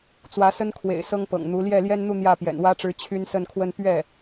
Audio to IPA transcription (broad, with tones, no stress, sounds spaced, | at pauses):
t͡s w ä˧˥ s ə˥ n kʰ w ḛ˨˩ ɪ̯ s ɤ˥ ŋ p ɤ̰˨˩ ŋ n̪ u˧˥ l j ɛ˥˩ l j ɛ˥ n n̪ u˥˧ n̪ j ä˥˩ p j ɛ̰˨˩ n w ä˥ ʈ͡ʂ ɻ̩˧˥ t͡ɕʰ y˥ n s ə˥˧ n kʰ w ə˥˧ n p ɥ ɛ˥˩